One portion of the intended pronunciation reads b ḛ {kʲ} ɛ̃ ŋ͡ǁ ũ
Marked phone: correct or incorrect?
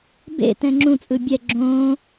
incorrect